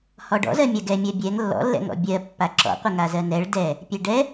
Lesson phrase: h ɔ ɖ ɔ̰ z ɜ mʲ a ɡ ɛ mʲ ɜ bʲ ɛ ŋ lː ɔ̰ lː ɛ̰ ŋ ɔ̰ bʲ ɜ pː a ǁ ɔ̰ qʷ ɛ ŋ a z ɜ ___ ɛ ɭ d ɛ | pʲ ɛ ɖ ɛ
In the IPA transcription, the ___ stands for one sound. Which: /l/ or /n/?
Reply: n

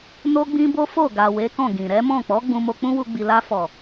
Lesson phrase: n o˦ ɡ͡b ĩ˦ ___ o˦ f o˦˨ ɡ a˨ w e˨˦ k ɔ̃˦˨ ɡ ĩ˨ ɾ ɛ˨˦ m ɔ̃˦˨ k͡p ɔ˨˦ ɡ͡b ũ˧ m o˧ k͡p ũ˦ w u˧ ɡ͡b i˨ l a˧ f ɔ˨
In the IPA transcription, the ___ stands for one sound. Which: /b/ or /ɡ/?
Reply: b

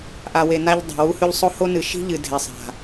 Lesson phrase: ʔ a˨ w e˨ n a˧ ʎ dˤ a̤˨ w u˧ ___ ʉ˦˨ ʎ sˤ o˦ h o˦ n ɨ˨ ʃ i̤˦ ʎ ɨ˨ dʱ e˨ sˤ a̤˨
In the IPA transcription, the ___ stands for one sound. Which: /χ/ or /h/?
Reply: h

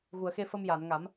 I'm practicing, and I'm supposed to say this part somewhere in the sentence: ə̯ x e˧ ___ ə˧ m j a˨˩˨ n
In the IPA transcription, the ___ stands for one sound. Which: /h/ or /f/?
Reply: f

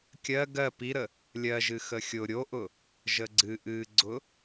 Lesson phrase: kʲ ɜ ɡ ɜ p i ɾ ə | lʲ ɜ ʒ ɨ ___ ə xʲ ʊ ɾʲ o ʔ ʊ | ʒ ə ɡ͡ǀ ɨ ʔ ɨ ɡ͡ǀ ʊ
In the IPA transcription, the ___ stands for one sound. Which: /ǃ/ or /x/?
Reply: x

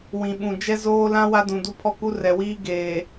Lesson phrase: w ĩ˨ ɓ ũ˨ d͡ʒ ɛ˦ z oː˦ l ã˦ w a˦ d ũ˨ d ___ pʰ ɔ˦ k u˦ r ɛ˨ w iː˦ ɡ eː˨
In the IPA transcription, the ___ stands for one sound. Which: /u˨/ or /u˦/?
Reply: u˦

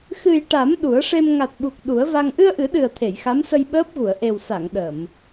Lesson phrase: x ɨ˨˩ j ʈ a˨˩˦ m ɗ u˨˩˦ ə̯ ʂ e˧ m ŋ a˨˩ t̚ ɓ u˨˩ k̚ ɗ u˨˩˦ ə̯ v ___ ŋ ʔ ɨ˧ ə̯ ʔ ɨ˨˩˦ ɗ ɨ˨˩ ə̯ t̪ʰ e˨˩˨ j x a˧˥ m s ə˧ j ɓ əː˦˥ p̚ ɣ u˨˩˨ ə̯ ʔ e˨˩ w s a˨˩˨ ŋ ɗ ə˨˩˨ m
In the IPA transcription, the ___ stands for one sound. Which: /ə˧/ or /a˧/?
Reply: a˧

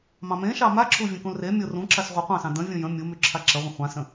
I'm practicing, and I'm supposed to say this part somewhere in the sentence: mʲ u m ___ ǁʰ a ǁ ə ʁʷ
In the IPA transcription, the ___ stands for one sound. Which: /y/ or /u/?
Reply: y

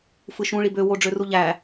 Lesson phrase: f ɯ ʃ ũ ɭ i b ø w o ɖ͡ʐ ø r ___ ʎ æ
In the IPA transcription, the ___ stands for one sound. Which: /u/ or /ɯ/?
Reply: u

